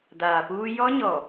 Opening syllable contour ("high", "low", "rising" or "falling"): low